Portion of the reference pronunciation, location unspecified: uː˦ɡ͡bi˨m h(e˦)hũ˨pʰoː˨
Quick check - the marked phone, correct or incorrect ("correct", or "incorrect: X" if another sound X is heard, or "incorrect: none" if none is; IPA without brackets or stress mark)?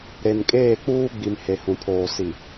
incorrect: e˨